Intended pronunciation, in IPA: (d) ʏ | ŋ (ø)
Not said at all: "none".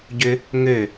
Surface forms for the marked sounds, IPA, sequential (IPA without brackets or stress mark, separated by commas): ɟ, ø